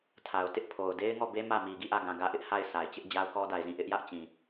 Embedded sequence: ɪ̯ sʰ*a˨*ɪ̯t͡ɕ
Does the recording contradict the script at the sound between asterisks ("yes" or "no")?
no